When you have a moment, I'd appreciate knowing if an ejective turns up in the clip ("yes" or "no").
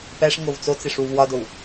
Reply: no